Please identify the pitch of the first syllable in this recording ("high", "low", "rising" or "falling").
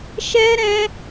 high